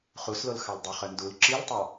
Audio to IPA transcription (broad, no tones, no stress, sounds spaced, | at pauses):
χ u s l o l x ɑ l dˤ o χ œ n d u l ǁ i l tˤ ɑ